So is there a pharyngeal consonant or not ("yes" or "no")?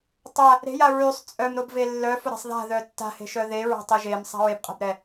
no